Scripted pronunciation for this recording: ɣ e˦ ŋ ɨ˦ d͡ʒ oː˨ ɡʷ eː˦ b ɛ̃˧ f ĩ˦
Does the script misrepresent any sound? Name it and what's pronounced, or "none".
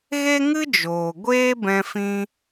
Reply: none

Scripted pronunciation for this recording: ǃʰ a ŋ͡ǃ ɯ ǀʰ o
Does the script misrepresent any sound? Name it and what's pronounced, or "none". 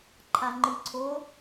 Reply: none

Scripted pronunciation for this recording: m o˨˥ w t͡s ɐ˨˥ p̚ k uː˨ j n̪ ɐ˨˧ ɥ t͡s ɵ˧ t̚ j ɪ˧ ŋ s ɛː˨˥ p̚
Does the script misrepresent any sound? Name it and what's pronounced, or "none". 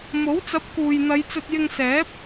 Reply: ɥ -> j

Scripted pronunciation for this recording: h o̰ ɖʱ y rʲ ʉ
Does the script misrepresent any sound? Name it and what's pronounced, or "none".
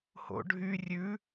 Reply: none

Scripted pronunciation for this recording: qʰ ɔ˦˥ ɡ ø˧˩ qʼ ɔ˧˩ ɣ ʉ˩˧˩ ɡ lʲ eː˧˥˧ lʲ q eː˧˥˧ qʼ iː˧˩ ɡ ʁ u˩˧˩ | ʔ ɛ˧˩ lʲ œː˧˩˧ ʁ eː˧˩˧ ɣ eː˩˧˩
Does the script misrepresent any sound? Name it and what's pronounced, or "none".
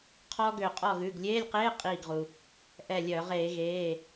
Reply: u˩˧˩ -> u˩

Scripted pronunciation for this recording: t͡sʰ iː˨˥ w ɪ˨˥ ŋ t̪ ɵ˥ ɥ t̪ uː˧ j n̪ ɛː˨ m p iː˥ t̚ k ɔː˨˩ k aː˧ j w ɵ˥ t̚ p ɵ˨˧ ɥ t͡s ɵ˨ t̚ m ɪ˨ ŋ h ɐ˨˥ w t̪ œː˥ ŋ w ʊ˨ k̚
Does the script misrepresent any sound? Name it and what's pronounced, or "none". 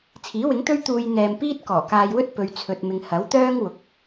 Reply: t͡s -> t͡sʰ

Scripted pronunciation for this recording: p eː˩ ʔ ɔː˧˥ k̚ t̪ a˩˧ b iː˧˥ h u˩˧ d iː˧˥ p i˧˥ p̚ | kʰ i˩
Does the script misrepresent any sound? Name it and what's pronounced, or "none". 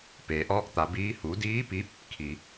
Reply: none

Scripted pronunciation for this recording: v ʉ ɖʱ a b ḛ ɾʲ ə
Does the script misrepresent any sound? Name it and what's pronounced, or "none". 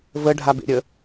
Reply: ʉ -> ə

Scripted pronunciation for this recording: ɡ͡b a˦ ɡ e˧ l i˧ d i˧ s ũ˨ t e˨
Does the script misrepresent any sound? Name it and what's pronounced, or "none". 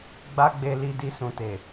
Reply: ɡ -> ɡ͡b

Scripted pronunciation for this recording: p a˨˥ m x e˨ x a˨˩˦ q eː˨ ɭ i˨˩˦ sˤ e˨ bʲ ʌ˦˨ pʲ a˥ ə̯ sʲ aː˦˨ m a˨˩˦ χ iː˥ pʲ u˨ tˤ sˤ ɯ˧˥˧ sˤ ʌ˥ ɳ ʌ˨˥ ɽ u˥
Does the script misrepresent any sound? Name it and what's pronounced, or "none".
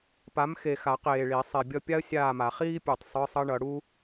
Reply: none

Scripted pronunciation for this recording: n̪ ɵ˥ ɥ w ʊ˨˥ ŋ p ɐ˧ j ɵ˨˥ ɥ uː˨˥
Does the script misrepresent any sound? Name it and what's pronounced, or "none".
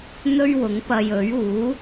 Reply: none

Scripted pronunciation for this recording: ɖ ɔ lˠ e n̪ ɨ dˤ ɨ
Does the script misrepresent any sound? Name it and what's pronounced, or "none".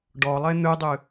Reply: none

